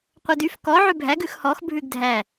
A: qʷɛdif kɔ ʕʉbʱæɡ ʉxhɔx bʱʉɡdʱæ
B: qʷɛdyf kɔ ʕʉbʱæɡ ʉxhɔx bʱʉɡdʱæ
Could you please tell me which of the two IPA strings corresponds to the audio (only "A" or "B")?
B